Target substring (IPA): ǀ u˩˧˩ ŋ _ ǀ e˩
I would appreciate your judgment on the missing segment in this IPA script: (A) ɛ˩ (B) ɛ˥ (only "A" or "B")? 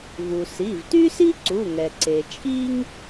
A